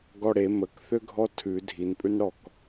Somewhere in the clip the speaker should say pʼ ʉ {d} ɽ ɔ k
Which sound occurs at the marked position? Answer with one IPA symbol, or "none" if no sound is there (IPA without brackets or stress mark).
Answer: n